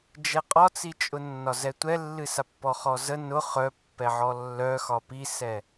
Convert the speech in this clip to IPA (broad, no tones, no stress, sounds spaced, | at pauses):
d͡ʒ ɛ qʼ ɒ t͡s i t͡ʃʼ ʊ nː ɒ z ɛ tʷ ɛ lː ɨ s a pː ɔ χ ɔ z ə n ʊ χ œ pː ɛ ʕ ɔ lː œ x ɒ p i s ɛ